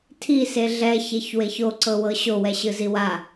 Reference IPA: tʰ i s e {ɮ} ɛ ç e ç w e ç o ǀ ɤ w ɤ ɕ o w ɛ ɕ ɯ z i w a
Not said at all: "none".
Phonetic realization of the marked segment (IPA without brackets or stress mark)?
ɮ